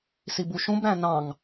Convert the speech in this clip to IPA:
s i b u ʃ ũ b ɾ æ̃ n ɑ̃ ŋ

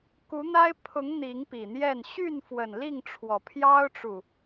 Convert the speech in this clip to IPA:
k u˨˦ n̪ a˦ ɪ̯ pʰ ʊ˨˦ ŋ n̪ i˨˦ ŋ p i˨˩ n̪ j ɛ˥˨ n ɕ y˥˨ n f w ə˨˩ n l i˥˨ ŋ ʈ͡ʂʰ w ɔ˨˩ pʰ j ɑ˦ ʊ̯ ʈ͡ʂ u˨˩

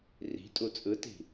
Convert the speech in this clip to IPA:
r i̤ tʼ u t͡sʼ ɯ t i̤

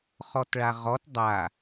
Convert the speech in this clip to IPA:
χ ɔ t ɭ a ʁ ɔ t dˤ a

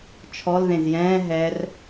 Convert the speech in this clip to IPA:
t͡ʃʰ ɔ l ð ẽ z j ɛ̃ː ɦ ɛ r

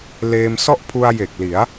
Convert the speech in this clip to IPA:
l eː˧ m s ɔ˥˩ ʔ pʰ u˧ a̯ j e˨˩ k̚ l i˩˦ a̯

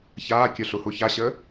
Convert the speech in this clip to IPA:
ç aː kʲ œ ɬ u h u ç a ɕ əː

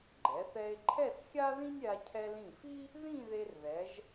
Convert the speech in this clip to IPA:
ɡ͡ǃ ɛ˩˧ θ ɛ˧ e̯ ǃʰ ɛ˥˧ s xʲ a˥ ð ĩ˥ nʲ ɾʲ a˧ cʰ ɛ˧ l ĩ˧˩ f i˥ | ð ĩ˥˧ ð e˧ r ð ɛ˩˧ ʒ

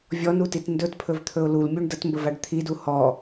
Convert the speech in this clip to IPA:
vʲ ɔ n u t i t n d ɵ t pʰ ɵ v t̪ʰ ɵ ʊ̯ l u l mʲ u ɳ d ə t m b ə v a ɖ t̪ʰ i d u h ɔ

